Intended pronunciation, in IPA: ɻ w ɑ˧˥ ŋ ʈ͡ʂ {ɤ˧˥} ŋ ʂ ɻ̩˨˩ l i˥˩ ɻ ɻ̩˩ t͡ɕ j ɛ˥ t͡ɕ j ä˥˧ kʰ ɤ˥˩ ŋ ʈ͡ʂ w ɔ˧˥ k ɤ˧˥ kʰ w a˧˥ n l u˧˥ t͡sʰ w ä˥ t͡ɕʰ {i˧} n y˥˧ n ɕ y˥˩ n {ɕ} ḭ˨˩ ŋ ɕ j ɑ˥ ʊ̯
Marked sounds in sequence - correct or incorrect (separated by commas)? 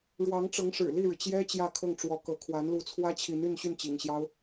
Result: correct, incorrect, incorrect